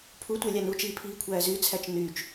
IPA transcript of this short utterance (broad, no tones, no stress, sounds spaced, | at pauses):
pʰ u tʷ æ lʲ ɑ n u t͡ʃ iː pʰ iː kʷʰ æː z y t͡sʰ æ t͡ʃ n yː t͡ʃ